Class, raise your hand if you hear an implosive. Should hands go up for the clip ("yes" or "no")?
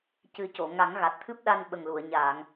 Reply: yes